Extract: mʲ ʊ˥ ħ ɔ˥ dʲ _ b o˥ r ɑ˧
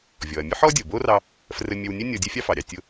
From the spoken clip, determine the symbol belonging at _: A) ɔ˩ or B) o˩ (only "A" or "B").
B